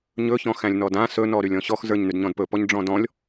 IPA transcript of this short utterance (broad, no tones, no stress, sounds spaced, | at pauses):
ɲ ɵ ç ɔ̃ x æ̃ lʲ n ɔ d ã s ɵ n ɔ ɾ y lʲ ɔ̃ ɕ ɔ x z ə˞ ɲ n y d ɲ ɔ̃ d p ɵ p ɔ ɲ ɖ͡ʐ ɔ̃ d ɔ̃ lʲ